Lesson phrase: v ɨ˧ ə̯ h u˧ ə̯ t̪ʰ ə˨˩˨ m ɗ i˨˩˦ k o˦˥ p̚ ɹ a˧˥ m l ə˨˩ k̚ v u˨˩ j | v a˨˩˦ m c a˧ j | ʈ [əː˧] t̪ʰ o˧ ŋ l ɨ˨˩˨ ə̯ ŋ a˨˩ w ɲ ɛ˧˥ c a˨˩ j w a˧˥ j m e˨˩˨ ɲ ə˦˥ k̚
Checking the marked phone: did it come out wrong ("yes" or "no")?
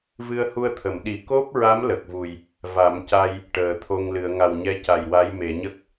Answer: yes